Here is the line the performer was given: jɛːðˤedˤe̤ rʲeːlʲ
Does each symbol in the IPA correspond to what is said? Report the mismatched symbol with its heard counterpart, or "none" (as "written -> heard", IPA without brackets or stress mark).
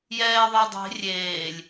none